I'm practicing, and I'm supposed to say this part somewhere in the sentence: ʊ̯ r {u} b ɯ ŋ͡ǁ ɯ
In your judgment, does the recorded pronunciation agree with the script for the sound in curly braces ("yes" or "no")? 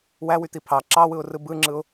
no